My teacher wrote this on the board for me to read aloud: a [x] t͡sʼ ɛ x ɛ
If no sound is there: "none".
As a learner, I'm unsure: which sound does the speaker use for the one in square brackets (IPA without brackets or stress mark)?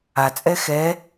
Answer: none